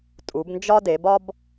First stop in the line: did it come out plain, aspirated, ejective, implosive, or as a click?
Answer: ejective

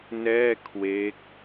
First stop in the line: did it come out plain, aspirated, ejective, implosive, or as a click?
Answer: aspirated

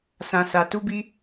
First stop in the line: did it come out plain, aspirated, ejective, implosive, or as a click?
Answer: plain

